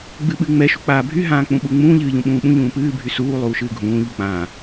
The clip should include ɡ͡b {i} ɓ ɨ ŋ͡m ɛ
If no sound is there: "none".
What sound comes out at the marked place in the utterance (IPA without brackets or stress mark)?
ɨ